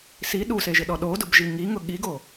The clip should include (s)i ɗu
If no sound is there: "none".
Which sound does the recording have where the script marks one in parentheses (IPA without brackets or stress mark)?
s